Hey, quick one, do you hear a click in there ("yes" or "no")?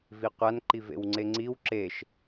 yes